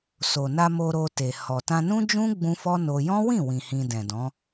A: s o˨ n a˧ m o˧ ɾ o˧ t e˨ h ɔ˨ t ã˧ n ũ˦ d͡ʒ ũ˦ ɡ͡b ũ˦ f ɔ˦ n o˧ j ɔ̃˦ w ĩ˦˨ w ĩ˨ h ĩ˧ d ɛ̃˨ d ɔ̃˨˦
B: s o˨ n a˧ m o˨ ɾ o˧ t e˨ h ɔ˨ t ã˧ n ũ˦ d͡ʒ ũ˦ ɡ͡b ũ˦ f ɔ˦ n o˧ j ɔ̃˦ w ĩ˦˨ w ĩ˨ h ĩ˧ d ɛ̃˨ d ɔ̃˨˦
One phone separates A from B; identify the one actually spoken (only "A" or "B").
A